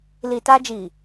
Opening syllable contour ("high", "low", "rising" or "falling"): low